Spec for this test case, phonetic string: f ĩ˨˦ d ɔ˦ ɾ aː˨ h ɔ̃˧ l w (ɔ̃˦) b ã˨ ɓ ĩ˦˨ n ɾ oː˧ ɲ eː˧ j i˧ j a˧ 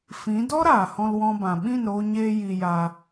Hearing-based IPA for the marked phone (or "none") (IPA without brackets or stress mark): ɔ̃˧